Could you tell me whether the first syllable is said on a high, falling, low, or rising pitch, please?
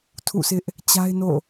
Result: falling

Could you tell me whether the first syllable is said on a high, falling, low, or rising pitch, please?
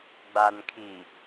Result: low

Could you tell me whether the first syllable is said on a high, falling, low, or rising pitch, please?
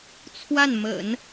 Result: falling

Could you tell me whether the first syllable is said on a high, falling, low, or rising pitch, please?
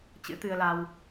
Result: rising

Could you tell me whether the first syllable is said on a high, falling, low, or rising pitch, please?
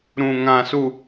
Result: low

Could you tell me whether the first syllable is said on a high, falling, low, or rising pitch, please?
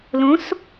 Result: rising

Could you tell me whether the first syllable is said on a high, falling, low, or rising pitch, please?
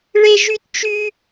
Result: high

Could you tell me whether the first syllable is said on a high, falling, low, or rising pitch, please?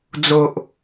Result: low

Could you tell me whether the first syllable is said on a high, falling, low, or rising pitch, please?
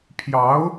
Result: rising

